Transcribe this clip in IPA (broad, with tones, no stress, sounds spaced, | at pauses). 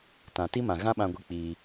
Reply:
t ã˨ t i˦ m ã˨ ɣ ã˦ ɓ ã˧ ɡʷ i˧ k͡p iː˧